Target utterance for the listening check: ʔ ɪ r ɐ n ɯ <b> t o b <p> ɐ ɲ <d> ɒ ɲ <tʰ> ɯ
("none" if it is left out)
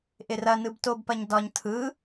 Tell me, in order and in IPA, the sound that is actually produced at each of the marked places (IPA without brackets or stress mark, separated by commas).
b, p, d, tʰ